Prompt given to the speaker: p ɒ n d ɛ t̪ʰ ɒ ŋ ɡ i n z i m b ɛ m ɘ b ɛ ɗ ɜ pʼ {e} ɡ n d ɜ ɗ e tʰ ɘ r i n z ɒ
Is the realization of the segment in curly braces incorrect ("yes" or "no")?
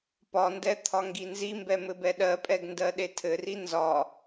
yes